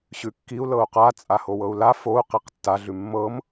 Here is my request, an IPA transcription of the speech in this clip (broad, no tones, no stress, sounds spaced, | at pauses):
ɕ ʉ kː i u̯ l ɤ u̯ q a t͡sʼ a h o w ɤ u̯ l a f o u̯ q i q tː a ɮ ʉ mː ɤ m